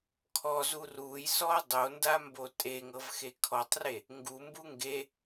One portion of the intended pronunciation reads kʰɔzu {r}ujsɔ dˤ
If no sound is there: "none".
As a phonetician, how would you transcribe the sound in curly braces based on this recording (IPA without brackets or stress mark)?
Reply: r